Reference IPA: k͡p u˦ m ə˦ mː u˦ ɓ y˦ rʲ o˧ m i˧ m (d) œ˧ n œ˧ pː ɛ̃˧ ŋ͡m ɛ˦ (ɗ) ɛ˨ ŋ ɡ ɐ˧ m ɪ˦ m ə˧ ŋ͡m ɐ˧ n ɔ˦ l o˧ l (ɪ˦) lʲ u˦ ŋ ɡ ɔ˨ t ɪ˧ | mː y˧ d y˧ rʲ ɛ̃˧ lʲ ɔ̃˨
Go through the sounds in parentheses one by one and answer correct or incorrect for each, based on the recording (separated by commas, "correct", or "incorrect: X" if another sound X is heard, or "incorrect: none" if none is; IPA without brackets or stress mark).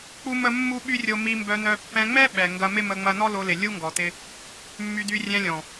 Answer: incorrect: b, incorrect: ɓ, incorrect: ɪ˨